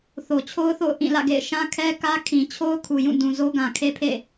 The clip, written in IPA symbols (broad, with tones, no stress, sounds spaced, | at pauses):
θ o˨ t͡ɕʰ o˦ ʊ̯ θ o̰˦˨ ʊ̯ ʔ ĩ˦˨ l ä̰˦˨ ɡ ḛ˦˨ ɪ̯ ʃ ã˦ kʰ ɛ˦ k ä˦ kʰ ĩ˨ t͡ɕʰ o˦ ʊ̯ kʰ u˨ j ũ˦˨ d ũ˨ z o˦ ɡ ã˨ kʰ e˦ pʰ ḛ˦˨